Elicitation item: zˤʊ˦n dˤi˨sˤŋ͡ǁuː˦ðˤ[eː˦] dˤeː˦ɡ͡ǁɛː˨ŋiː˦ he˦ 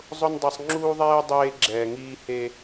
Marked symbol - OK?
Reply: no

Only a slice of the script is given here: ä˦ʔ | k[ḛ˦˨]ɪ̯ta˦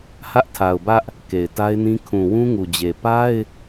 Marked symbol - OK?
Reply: no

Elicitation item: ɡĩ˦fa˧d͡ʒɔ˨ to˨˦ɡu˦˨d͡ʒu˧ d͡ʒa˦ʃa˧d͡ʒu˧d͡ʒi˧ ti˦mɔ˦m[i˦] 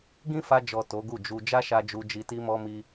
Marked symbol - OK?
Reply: yes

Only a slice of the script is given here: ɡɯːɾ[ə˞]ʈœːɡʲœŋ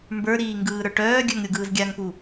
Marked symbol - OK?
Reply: yes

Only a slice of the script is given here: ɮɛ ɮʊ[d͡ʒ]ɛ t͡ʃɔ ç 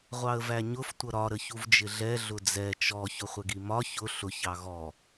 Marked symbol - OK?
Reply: no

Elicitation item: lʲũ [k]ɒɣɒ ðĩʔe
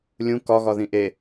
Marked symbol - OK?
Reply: yes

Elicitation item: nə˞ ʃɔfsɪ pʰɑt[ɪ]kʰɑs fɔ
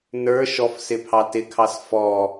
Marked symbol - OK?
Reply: yes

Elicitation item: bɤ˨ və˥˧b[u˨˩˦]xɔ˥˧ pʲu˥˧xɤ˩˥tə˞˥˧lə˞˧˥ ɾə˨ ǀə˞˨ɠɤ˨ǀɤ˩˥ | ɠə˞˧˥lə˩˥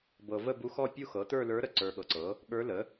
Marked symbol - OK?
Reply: no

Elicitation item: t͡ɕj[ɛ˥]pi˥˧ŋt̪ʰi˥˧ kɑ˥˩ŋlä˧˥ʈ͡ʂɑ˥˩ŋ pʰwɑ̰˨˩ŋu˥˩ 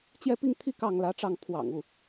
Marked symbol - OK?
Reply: no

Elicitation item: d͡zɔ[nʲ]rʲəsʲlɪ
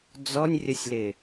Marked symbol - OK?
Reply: yes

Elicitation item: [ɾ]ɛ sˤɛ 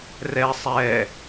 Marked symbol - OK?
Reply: no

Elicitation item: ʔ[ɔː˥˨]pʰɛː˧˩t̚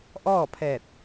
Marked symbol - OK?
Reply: yes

